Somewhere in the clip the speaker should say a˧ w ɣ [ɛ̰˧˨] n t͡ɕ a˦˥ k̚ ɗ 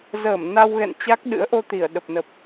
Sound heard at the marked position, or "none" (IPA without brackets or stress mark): ɛ̰˧˨